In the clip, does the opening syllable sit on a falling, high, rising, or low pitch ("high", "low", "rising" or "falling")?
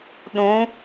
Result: rising